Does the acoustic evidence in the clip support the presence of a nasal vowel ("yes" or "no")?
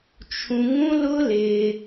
yes